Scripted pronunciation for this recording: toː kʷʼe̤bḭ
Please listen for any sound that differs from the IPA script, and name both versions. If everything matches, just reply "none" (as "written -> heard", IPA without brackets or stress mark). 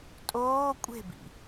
t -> tʼ